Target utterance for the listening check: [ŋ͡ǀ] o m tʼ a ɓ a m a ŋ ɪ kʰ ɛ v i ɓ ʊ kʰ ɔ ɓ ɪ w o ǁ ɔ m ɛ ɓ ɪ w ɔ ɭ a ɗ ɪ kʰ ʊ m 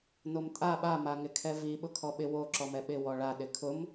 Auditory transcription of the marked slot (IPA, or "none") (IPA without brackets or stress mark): n